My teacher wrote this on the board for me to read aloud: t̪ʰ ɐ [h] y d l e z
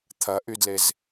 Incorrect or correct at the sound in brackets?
incorrect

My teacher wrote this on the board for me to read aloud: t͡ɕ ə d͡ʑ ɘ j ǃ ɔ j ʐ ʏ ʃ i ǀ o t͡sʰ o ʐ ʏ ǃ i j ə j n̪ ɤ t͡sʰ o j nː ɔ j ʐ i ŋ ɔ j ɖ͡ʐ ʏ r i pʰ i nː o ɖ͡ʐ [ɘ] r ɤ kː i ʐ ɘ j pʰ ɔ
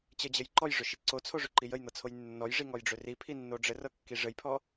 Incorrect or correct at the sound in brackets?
correct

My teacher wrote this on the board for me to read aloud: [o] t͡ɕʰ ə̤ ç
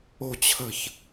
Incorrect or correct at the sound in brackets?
incorrect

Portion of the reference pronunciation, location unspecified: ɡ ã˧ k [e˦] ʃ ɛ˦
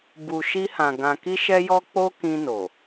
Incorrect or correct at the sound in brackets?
incorrect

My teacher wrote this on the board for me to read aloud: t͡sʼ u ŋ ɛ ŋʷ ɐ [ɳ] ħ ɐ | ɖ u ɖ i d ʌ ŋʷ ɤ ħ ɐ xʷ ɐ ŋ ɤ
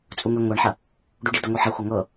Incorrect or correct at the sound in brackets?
correct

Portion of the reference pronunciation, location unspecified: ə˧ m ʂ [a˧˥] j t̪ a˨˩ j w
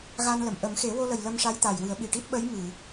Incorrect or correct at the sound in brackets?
correct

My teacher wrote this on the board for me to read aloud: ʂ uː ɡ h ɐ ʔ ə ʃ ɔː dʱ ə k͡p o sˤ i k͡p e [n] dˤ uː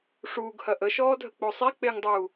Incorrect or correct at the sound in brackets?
incorrect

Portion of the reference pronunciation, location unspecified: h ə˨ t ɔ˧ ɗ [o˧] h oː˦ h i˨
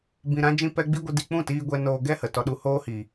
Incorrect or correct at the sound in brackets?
incorrect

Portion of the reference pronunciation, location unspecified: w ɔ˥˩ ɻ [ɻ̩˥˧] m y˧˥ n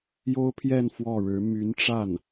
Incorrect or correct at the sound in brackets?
incorrect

